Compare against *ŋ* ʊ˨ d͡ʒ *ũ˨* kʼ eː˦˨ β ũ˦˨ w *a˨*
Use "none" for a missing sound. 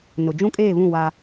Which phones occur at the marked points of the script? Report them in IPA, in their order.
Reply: n, ũ˦, a˦

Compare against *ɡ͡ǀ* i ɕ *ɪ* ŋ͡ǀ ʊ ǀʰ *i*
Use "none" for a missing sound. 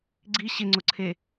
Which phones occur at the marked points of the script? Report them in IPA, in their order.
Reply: ɡ͡ǀ, ɪ, e

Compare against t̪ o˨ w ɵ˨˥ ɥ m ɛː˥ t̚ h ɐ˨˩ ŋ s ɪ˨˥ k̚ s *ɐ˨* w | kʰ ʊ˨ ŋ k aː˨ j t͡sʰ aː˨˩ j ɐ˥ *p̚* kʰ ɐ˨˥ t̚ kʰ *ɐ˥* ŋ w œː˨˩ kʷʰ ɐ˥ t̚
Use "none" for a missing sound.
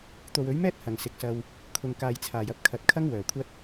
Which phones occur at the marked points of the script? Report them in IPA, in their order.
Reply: ɐ˧, p̚, ɐ˥

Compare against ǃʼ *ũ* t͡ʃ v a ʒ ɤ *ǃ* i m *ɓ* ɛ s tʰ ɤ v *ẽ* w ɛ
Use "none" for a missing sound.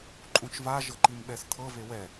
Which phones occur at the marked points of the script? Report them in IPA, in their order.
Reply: ũ, ǃ, ɓ, e

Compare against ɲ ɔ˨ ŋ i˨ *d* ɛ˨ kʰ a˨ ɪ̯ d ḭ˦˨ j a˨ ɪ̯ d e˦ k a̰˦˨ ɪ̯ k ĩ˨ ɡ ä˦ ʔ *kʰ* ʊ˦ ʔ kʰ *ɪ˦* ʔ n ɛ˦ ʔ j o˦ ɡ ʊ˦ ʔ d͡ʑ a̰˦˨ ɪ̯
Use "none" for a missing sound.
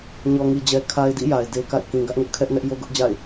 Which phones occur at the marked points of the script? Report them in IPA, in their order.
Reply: d͡ʑ, ŋ, ɛ˦

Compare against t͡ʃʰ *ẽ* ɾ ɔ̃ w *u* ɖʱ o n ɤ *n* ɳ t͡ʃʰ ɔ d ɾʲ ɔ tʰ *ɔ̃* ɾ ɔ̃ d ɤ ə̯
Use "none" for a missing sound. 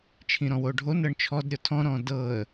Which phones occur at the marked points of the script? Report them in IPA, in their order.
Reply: ĩ, o, none, ɔ̃

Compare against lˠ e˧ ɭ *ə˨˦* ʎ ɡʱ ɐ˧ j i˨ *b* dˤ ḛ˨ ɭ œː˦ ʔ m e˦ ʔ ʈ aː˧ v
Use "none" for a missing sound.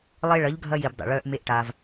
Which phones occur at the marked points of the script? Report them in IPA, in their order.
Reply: ɐ˨˦, b

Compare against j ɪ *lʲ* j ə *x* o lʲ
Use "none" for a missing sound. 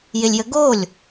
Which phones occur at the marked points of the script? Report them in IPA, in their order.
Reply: lʲ, ɡ

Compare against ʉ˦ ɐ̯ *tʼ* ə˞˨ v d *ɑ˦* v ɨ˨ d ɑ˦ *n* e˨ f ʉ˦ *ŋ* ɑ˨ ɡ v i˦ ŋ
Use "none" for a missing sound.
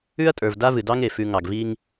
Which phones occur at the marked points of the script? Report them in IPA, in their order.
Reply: tʼ, a˦, ŋ, ŋ

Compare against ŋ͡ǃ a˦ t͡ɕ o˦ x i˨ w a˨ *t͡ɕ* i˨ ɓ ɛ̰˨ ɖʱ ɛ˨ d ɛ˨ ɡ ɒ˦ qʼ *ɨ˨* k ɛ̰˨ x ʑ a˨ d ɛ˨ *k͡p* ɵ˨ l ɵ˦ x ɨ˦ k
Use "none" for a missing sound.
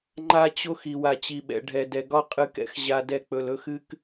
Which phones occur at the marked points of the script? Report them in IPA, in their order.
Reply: t͡ɕ, ɨ˨, k͡p

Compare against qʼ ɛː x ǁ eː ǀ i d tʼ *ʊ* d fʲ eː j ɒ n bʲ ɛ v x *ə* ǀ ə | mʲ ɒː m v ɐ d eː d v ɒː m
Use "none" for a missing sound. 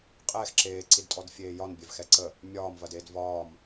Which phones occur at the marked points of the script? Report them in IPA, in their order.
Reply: ɔ, ɛ

